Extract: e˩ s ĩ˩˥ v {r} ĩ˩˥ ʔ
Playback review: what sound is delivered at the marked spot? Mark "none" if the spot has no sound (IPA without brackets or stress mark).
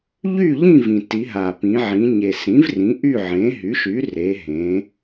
r